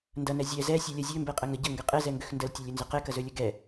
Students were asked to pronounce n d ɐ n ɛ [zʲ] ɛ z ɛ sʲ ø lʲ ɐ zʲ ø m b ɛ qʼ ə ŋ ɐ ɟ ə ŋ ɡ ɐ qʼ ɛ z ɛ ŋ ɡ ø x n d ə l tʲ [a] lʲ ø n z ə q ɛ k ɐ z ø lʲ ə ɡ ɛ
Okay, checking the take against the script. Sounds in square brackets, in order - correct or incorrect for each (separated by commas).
correct, incorrect